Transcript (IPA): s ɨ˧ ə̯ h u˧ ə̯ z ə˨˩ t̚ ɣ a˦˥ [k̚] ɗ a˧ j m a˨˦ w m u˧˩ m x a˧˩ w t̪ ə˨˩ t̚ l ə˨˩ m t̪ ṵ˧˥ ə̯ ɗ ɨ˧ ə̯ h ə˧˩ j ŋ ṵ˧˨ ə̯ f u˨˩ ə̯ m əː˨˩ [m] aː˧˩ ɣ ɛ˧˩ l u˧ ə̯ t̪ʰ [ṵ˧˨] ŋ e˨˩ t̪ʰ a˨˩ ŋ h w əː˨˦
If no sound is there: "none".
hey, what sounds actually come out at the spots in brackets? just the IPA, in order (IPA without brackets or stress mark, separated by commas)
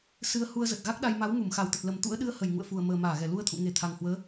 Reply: k̚, m, ṵ˧˨